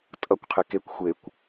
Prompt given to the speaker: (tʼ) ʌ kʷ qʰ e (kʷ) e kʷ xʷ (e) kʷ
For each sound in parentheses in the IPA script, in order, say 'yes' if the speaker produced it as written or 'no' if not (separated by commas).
yes, no, yes